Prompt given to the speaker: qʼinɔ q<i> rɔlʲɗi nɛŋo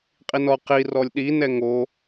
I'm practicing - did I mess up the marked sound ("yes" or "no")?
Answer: no